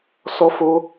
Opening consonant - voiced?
no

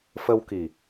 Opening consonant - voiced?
no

